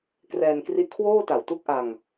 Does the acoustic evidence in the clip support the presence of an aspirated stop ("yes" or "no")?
yes